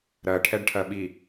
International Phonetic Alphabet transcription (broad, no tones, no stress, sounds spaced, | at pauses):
ɾ ɜ ʈʰ ɛ ɖ ʈʰ ɜ ɓ i